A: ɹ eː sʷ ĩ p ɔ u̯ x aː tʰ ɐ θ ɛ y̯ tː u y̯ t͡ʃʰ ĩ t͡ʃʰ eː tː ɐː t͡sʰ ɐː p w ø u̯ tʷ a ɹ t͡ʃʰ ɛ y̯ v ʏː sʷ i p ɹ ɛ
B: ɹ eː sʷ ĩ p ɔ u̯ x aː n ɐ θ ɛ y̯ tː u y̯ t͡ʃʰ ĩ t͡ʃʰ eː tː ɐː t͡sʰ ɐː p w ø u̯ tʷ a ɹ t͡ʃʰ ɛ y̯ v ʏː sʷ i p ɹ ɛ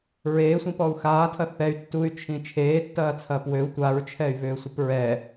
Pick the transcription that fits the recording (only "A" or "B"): A